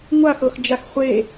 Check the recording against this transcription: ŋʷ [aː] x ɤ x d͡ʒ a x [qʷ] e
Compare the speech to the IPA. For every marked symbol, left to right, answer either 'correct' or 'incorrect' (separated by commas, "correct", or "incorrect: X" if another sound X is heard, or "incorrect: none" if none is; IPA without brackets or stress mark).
incorrect: a, incorrect: χʷ